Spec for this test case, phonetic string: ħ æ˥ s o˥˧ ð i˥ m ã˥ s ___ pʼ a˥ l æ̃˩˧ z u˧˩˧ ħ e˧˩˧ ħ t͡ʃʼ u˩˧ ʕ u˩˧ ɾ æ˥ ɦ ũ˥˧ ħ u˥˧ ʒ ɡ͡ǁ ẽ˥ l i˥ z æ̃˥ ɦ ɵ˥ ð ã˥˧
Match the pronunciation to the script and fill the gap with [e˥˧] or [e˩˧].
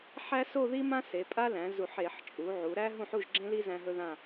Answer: e˩˧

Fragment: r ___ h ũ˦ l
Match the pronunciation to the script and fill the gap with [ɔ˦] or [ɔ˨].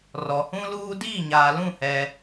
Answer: ɔ˨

